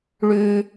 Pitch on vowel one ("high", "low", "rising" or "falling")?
high